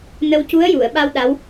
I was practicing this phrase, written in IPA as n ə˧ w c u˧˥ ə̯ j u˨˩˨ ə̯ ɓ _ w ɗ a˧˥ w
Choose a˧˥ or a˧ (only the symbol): a˧